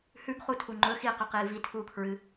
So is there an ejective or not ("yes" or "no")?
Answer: no